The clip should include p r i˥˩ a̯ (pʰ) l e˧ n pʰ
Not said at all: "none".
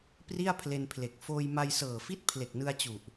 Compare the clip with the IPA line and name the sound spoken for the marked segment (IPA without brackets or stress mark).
pʰ